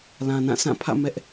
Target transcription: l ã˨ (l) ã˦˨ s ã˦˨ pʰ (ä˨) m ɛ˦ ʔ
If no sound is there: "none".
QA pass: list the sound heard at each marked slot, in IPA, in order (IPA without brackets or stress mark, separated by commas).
n, ä̰˦˨